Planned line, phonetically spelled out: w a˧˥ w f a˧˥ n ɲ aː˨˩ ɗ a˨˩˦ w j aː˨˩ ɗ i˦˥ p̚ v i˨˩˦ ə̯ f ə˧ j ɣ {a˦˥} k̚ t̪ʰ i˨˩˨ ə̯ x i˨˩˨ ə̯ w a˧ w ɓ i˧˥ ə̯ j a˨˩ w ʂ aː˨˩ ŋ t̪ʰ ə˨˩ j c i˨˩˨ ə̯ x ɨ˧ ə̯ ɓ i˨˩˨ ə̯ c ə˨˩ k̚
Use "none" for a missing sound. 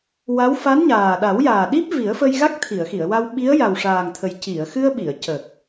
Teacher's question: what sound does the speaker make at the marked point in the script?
a˦˥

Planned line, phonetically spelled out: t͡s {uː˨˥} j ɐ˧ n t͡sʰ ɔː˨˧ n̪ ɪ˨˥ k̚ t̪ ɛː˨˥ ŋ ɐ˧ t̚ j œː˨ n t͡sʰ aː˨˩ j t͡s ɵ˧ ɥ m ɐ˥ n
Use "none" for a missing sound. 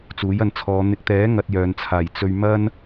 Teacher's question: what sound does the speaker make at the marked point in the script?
uː˨˥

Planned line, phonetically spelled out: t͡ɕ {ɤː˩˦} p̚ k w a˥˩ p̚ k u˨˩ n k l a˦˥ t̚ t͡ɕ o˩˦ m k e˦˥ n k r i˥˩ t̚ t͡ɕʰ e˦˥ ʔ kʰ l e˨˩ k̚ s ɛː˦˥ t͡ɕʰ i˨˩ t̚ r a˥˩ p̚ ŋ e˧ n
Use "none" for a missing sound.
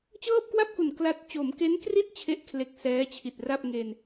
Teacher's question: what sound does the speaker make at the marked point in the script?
ɤː˥˩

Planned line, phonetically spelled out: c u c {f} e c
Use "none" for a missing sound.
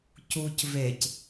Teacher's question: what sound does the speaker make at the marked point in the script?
v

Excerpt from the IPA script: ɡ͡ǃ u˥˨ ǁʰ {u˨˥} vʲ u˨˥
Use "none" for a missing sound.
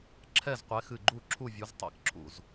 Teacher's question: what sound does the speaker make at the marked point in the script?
u˥˨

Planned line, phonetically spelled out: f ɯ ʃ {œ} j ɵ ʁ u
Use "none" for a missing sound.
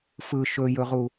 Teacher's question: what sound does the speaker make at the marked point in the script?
ɵ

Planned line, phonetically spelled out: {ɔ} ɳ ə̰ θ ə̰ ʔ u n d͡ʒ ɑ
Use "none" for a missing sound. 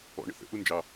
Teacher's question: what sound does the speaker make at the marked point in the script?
ɔ̰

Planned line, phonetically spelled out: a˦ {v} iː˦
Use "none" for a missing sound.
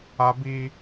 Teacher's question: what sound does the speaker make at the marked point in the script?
b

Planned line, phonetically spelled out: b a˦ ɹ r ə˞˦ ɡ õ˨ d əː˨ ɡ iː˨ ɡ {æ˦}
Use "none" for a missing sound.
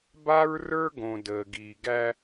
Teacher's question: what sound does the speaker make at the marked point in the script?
æ˦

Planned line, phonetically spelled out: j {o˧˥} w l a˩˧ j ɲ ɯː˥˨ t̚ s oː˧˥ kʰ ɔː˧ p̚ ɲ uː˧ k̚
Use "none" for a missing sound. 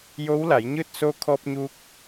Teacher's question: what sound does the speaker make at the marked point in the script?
o˧˥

